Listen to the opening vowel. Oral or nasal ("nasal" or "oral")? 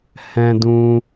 nasal